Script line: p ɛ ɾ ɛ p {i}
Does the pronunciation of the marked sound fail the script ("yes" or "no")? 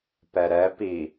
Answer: no